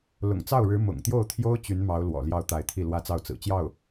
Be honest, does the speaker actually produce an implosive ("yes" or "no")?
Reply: no